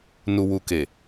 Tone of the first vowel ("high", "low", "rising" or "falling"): low